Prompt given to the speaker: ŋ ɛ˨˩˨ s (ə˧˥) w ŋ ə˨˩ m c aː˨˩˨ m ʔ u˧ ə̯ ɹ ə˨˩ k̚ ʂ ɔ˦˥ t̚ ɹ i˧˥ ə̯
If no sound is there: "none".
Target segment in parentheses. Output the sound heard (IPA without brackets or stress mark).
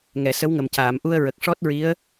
ə˧˥